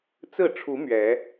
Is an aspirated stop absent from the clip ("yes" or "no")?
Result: no